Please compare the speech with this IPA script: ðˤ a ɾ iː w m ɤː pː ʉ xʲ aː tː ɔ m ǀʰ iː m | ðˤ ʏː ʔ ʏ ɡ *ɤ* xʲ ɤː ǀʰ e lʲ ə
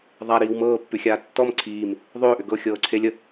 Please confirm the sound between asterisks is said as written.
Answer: yes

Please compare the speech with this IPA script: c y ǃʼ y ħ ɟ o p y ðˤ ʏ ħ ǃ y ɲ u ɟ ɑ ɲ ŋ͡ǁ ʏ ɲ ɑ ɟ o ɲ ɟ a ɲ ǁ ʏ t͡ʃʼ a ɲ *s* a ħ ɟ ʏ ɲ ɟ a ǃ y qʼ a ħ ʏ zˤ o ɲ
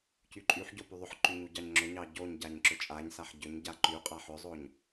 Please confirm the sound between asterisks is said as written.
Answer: yes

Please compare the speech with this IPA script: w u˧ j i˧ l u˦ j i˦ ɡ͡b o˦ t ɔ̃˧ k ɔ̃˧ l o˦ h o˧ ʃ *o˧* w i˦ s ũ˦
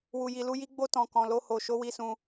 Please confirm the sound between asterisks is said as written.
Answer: no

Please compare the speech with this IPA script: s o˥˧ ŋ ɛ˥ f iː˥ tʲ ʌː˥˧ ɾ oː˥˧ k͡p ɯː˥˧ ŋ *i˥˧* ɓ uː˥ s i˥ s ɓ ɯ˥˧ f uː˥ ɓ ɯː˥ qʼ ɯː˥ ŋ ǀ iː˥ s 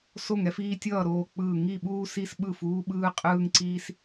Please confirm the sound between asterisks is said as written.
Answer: yes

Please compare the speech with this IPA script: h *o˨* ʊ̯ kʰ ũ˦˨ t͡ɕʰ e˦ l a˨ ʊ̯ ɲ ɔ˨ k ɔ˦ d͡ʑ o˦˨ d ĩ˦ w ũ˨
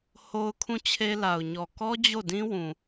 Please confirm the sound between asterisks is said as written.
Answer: no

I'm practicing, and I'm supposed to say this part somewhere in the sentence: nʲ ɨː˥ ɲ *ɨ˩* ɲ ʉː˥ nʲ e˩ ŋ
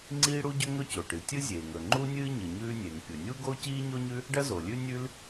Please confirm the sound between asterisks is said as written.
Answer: yes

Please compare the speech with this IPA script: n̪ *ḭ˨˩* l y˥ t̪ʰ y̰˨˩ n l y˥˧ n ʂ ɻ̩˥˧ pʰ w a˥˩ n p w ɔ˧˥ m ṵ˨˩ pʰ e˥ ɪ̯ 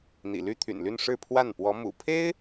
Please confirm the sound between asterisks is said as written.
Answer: yes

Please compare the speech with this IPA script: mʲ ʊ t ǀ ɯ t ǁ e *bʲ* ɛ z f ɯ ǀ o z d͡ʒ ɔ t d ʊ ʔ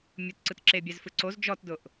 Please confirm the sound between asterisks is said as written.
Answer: yes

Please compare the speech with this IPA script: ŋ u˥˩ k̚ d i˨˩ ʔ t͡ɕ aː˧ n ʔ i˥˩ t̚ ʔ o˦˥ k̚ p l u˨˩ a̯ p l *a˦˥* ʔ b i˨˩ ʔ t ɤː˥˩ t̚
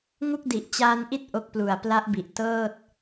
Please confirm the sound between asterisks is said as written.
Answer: yes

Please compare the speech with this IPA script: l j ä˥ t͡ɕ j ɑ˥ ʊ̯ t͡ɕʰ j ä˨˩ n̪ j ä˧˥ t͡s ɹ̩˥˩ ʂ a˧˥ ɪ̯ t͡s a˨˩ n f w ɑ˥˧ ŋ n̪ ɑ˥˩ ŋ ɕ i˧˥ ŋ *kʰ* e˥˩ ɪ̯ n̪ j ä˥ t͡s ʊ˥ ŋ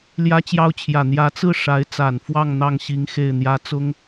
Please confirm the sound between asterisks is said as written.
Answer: no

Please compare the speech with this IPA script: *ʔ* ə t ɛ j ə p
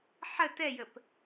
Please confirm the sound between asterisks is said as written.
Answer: no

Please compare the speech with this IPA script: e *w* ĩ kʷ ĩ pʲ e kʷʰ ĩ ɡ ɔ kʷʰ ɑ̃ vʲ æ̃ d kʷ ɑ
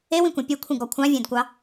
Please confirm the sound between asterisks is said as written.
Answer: yes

